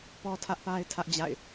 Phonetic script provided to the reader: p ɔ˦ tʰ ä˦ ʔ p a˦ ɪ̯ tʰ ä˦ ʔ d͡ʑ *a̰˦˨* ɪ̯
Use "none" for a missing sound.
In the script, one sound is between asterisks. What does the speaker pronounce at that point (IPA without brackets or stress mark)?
a̰˦˨